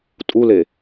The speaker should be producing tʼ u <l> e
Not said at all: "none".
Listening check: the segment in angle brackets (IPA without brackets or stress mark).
l